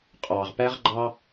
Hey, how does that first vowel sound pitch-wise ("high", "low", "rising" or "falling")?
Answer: low